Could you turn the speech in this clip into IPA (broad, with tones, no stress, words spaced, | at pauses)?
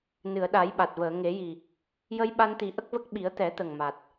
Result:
nɨ˨˩˨ə̯ɗa˨˩˦jɓa˨˩t̚vəː˨˩˨ ŋe˨˩˦ji˨˩ | jə˧j ɓa˧nt̪i˨˩˦ʔə˦˥k̚və˦˥k̚ ɓi˨˩˦ə̯t̪ɛ˨˩˦t̪ə˨˩ŋ ma˨˩t̚